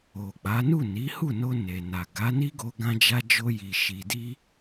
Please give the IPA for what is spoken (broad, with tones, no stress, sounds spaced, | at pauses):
o˨ k͡p a˨˦ n u˦˨ n i˨˦ h u˦˨ n o˧ n e˨ n a˨ ɡ a˨˦ n i˦ ɡ o˧ ɡ ã˦ d͡ʒ a˦ d͡ʒ o˦ j i˧ ʃ i˧ d i˦